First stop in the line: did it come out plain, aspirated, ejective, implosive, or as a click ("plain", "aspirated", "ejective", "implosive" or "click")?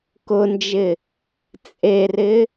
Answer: plain